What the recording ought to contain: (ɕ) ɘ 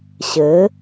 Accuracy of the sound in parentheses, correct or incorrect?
correct